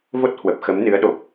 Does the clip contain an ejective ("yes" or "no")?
no